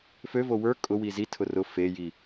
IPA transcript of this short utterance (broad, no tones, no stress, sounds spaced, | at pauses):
f ø v o w ə˞ kʼ ʊ w i z i tʰ ʊ r ʊ f e j i